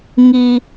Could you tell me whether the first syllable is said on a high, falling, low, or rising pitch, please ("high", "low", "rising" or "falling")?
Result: low